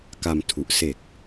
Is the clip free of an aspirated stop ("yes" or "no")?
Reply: no